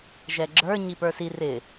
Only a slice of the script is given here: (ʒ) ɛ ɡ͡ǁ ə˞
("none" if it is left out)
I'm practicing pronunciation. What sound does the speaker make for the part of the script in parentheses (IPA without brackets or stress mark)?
ʒ